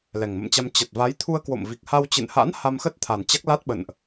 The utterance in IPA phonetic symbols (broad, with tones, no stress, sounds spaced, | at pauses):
l ɛ˨˩ ŋ m ə̰˧˨ m t͡ɕ a˧ m t͡ɕ ə˨˩ t̚ v a˨˦ j t̪ʰ u˧ ə̯ k w o̰˧˨ m v i˨˩ k̚ h a˧ w t͡ɕ ɨ̰˧˨ n h a̰˧˥ n h a˧ m x ə˦˥ t̚ t̪ʰ a˨˩ n t͡ɕ a˦˥ k̚ l a˦˥ t̚ ɓ ə̰˧˨ n ʔ